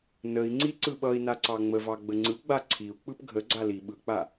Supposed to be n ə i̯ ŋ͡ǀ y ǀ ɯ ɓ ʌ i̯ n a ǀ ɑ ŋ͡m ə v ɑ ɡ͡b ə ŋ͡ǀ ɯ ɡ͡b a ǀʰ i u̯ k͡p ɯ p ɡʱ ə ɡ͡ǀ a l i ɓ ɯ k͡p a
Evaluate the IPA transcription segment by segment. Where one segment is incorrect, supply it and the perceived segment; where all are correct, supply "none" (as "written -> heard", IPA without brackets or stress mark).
y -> i